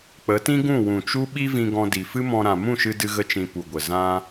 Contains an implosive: yes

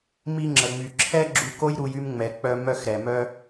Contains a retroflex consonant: no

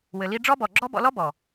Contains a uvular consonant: no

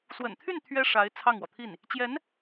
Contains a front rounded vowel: yes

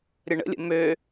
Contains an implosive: no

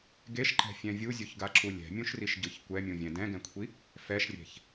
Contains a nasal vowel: yes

